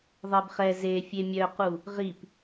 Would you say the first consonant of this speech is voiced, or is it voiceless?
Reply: voiced